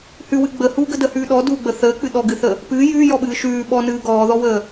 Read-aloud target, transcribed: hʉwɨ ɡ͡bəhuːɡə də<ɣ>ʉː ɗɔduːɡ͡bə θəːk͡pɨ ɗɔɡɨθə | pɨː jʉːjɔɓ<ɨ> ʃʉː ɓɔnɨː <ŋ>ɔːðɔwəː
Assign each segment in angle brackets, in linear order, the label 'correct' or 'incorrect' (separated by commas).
incorrect, incorrect, incorrect